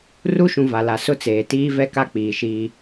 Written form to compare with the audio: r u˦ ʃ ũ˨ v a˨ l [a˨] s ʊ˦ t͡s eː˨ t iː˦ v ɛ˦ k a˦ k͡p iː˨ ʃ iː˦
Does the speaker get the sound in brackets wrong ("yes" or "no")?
no